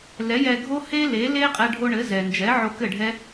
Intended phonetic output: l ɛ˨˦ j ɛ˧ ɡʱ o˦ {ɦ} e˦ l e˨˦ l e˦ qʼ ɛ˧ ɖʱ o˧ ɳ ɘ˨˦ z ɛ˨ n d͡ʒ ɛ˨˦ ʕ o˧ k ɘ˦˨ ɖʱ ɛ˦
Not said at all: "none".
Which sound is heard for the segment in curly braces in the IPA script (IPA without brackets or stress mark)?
h